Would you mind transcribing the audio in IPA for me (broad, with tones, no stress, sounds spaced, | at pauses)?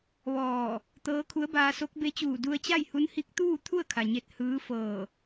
ʋ ɔː˧˩ | t̪ ɤː˧˥ kʰ u˧˥ ə̯ b aː˧ s o˧˥ k̚ b e˧˥ t͡ɕ uː˧˩ d u˧ ə̯ t͡ɕ a˥˨ j h u˧˥ n h i˧˥ k̚ t̪ uː˥˨ t̪ʰ u˥˨ ə̯ kʰ a˩ ɲ e˧˩ t̚ h ɯː˧˥ f ɤː˧˩